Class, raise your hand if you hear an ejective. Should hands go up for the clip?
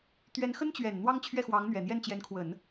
no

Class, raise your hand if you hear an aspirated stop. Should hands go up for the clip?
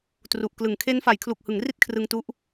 yes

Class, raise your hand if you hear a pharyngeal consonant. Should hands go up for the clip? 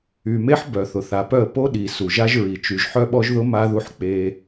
yes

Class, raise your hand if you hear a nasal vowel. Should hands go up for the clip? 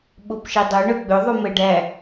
no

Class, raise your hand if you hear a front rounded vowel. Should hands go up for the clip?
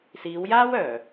yes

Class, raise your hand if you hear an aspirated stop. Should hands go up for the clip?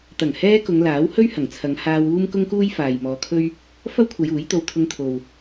yes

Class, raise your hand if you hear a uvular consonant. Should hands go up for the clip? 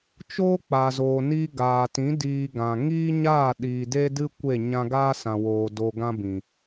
no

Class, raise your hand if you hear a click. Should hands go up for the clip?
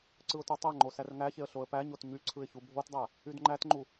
yes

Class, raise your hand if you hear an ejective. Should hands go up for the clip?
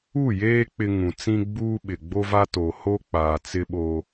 no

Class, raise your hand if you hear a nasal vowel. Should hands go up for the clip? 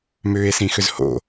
yes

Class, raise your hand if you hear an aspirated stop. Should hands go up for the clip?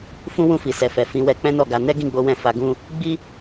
no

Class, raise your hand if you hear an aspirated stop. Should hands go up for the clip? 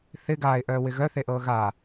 no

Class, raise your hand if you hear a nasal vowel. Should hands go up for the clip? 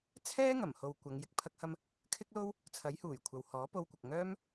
no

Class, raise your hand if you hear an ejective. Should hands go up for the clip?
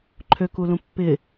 no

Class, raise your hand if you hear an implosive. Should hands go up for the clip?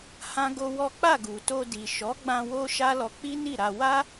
no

